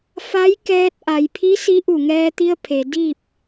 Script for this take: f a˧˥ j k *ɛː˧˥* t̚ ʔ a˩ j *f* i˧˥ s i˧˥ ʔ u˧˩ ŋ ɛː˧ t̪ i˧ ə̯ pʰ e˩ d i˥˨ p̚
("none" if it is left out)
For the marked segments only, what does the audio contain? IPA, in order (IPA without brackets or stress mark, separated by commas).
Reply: ɛː˧, pʰ